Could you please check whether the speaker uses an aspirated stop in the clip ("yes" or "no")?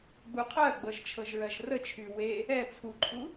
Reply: yes